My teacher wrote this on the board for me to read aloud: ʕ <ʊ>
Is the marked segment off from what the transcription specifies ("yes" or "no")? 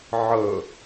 yes